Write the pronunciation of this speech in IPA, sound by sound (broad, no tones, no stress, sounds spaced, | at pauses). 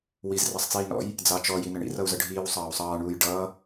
w i z r ɑ sˤ t͡s iː n ɔ̰ j | d͡z ɑ t͡ʃ ɔ j i n ə ɳ ḭ r ʌ u̯ z ʌ ɖʱ iː w sˤ ɑː u̯ sˤ ɑː ɳ uː j ɖ ʌː